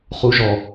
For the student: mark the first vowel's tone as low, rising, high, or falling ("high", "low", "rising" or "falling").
rising